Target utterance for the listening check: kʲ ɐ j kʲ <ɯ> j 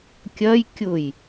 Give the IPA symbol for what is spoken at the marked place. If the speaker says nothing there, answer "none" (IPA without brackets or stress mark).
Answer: ʊ